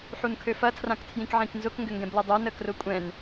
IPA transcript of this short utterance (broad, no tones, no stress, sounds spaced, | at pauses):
ħ u n kʰ ø f ɐ tʰ r ã k tʰ j ĩ k ʕ ĩ k n z ʊ k ŋ ɡ ʏ ŋ ɡ ɛ̃ b l ɐ dˤ œ n ə k r ʊ kʷʼ ɛ̃ n